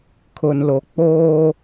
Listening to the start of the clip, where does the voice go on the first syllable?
low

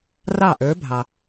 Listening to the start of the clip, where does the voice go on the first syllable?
falling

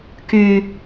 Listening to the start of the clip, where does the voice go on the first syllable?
high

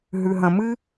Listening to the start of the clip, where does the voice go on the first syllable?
low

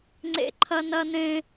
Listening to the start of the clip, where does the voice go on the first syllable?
high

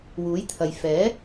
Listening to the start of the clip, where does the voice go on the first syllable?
rising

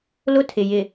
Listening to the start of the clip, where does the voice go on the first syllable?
high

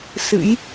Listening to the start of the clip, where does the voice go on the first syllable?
rising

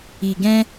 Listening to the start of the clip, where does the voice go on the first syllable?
low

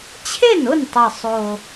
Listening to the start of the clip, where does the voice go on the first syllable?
falling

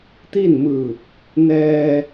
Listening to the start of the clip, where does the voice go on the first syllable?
falling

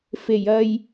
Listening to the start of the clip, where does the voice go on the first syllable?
low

